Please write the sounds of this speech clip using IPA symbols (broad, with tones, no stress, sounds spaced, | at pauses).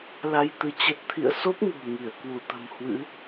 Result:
l a˧ j t̪ ɨ˨˦ t͡ɕ ə˦˥ t̚ t̪ʰ ḭ˧˨ ə̯ s o˦˥ p̚ ŋ ṳ˨˩ ŋ i˧˩ ə̯ k w u˧˩ t̪ ə̤˨˩ m h w ɨ̰˧˥